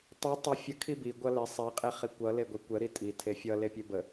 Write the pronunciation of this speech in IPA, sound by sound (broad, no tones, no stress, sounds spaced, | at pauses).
tˤ i tˤ ə fʲ ə kʰ i b i ɡʷ ʌ l e sˤ e qʼ e χ i kʷ ʌ l e ɡʷ i kʷ ə ɾ i tʼ i tʰ e fʲ ʌ l e pʲ e b ə